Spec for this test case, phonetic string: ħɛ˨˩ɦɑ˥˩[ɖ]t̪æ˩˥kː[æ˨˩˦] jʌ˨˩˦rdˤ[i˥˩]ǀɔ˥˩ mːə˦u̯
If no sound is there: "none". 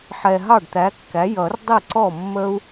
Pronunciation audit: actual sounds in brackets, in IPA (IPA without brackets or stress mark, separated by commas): ɖ, æ˩˥, i˥˩